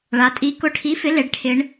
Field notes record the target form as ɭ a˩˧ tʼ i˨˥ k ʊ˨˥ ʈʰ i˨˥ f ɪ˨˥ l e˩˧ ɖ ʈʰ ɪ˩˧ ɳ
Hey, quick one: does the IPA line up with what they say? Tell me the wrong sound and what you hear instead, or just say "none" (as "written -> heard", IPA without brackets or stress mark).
none